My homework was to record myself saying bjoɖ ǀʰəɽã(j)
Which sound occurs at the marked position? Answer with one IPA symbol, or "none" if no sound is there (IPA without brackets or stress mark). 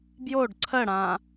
none